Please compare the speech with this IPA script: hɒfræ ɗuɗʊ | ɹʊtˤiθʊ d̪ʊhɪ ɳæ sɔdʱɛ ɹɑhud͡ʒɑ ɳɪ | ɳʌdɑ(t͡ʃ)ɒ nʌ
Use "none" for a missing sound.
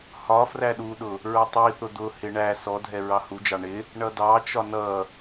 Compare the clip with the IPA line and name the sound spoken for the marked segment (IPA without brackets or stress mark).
t͡ʃ